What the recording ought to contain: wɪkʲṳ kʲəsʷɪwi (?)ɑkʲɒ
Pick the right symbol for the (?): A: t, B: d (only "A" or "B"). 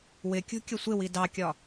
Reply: B